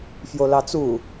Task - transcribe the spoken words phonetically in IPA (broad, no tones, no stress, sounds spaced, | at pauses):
f j o l ɑ t͡s u